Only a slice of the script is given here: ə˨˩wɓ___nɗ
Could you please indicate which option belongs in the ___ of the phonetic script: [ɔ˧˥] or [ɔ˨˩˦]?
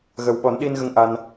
ɔ˨˩˦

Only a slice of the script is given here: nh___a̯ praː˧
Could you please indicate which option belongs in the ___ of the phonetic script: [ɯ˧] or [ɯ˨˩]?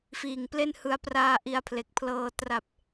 ɯ˧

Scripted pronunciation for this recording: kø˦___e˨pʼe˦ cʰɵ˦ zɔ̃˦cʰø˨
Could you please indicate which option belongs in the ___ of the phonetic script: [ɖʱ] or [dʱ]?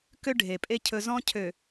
ɖʱ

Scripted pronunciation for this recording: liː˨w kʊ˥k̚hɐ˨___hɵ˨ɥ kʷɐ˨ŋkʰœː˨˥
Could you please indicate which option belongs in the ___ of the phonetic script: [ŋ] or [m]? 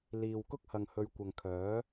ŋ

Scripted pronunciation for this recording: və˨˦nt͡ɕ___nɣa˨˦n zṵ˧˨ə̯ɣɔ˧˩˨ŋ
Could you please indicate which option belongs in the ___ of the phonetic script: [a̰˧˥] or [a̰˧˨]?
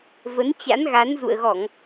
a̰˧˥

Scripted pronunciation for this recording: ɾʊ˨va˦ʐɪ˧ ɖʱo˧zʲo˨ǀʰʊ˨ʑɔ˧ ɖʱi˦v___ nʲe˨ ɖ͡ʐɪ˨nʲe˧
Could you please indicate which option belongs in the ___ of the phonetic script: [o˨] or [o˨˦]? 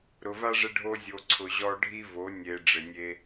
o˨˦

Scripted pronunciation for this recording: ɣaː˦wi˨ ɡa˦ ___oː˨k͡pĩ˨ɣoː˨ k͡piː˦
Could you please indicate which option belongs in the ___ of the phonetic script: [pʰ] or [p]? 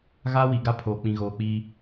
pʰ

